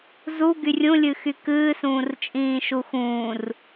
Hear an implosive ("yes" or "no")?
no